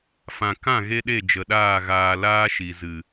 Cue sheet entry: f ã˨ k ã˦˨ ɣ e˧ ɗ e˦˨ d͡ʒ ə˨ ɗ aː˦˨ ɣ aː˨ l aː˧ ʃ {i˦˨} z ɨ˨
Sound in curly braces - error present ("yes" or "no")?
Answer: yes